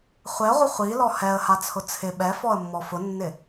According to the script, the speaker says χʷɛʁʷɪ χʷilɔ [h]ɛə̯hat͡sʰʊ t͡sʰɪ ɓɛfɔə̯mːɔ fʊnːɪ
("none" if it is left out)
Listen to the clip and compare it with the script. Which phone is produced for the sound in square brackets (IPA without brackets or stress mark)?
h